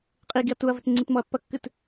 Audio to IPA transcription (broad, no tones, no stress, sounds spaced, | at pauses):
qʼ i ɡ i ɐ̯ t u ɐ̯ v ɘ t ŋ͡ǀ i t m ɔ ɐ̯ pː ɐ kː ɨ t